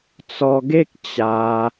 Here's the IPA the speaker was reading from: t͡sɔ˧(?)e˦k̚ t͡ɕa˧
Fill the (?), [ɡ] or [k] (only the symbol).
ɡ